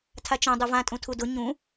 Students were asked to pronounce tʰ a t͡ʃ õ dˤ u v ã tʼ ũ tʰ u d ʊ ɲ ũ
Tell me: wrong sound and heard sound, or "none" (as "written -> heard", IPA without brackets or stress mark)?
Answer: none